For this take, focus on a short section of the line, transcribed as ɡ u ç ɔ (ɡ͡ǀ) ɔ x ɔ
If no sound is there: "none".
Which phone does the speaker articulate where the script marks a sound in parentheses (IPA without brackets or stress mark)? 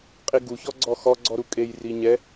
ɡ͡ǀ